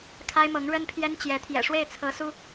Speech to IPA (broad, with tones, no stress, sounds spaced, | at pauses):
kʰ a˥ ɪ̯ m ɤ˧˥ ŋ ɻ ə˥ n pʰ j ɛ˥ n t͡ɕ j ɛ˧˥ t̪ʰ j ɛ̰˨˩ ʂ w e˥˩ ɪ̯ t͡sʰ ɤ˧˥ s u˥